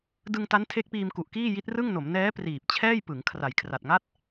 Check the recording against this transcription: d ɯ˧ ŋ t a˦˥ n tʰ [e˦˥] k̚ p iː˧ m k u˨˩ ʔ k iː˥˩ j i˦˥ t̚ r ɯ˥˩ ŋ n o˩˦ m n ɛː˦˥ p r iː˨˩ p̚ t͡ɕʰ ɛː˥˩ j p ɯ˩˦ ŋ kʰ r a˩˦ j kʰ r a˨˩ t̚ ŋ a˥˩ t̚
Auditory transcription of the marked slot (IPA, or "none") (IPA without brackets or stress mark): e˦˥